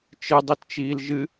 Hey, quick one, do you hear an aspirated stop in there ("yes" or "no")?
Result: no